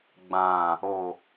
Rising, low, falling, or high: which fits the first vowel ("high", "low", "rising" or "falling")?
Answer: low